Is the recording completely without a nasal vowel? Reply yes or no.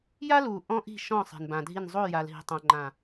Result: no